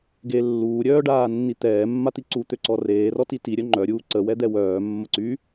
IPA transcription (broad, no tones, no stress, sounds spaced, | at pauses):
ɡ e lː uː ɾʲ œː ɖ aː nː i t̪ ɛː mː a t̪ i ǀ u t̪ ø ǀ ɔ r eː r ɔ t i t i ɾʲ œ ŋ͡ǃ œ ɾʲ uː ǀ ə w ɛ d̪ ɛ w œː mː ə ǀ y